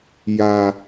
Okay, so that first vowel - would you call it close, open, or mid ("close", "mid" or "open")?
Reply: open